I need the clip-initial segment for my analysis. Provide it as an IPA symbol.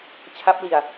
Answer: t͡ɕʰ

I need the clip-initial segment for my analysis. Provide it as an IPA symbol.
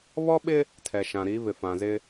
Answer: β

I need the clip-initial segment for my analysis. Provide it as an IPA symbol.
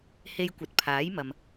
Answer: h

